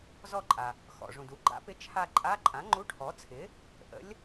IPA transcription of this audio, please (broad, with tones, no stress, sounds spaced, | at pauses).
z ɔ˦˨ ǃʼ a˩ | x ɔ̰˩ ʐ ũ˩ d u˩˥ ɡ͡ǃ a̰˧˥ p ɪ˧˥ t͡ʃʰ a˦˨ ǃʼ a˧˥˧ ǃʼ ã˩˥ ŋ͡ǃ u˧˥˧ ʈʰ ɔ˩˥ t͡sʰ ɪ˩˥ | ʔ ə̰˧˥ lʲ